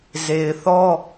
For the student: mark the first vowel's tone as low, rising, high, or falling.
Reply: low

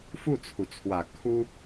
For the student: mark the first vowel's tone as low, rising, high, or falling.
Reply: falling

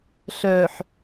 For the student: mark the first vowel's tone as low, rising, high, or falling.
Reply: low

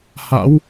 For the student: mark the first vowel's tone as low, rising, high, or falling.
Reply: rising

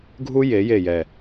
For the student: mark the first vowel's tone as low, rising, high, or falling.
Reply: high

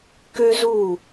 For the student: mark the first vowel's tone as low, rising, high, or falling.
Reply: high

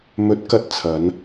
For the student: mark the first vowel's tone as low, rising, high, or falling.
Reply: rising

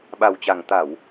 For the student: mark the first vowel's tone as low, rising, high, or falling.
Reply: low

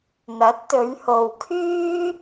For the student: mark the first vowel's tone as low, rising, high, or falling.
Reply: rising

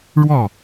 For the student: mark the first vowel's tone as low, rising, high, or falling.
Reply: falling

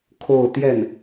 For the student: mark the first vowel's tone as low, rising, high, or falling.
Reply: falling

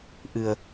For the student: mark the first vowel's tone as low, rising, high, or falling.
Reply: low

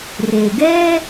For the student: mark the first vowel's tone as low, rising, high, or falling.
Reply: low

